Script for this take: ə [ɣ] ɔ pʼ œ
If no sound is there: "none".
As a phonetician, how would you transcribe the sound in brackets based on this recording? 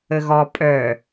ɣ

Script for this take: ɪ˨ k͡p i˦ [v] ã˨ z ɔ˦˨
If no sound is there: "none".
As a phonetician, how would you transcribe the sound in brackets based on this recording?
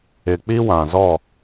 w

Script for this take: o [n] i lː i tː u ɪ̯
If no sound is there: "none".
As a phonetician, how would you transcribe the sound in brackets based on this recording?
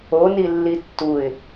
n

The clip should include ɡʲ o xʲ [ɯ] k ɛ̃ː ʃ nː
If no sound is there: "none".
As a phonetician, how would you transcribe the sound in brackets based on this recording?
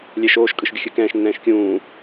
ɯ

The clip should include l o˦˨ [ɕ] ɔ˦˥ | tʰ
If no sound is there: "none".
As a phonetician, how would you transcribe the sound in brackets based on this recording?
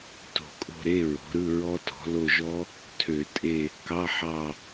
ʒ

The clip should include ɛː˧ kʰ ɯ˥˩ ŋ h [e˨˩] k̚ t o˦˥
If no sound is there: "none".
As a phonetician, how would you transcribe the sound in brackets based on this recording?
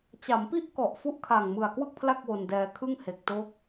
e˨˩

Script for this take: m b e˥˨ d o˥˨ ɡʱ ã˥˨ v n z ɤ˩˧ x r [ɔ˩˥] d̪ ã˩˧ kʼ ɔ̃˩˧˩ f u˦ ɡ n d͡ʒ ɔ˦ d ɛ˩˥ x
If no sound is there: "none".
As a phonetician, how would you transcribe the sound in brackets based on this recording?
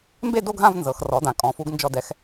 ɔ˩˥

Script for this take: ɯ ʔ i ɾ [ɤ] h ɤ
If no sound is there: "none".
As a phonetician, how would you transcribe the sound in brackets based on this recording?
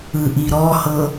ɔ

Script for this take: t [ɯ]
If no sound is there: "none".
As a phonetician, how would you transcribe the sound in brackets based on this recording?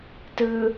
ɯ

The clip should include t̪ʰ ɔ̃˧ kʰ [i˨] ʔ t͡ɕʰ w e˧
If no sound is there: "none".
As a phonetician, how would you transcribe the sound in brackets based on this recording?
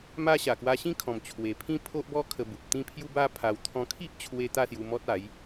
i˦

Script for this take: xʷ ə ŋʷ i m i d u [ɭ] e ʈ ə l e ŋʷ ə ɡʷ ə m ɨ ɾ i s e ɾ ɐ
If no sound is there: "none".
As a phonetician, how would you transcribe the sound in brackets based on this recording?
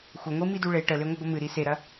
ɭ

